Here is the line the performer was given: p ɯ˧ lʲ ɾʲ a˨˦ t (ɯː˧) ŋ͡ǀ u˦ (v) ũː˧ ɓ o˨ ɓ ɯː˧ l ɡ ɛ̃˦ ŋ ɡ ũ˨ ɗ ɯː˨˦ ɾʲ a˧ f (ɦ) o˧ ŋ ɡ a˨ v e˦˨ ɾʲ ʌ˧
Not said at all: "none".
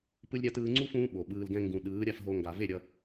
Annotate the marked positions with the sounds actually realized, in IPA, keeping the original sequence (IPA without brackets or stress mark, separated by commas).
ɯː˧, f, ɦ